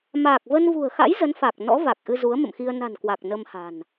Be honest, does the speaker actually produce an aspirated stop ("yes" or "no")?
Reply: no